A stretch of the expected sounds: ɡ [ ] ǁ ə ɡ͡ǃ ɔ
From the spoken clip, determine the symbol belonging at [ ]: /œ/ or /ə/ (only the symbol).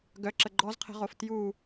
œ